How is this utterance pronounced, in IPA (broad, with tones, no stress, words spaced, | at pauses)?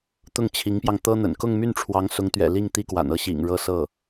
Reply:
t̪ʊ˥˩ŋt͡ɕʰi˧˥ŋpjɑ˧ŋ t̪ɤ˥n̪ə̰˨˩n kʊ˥˧ŋmy˥˩nʈ͡ʂʰwɑ˧˥ŋ sʊ˧˥ŋt̪ɥɛ̰˨˩ li˥˩ŋ t̪i˥kwa̰˨˩n ɤ˥˩ɕḭ˨˩ŋ ɻɤ˥sɤ˥˩